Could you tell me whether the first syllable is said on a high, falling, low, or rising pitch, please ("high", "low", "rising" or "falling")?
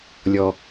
low